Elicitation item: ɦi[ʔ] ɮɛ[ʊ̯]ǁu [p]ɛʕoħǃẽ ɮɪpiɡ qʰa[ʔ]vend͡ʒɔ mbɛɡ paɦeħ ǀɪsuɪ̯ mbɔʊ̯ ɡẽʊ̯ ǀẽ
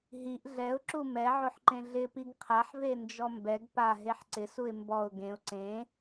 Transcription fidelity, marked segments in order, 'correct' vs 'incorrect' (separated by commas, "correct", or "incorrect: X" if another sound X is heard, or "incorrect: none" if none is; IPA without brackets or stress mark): correct, correct, incorrect: m, incorrect: ħ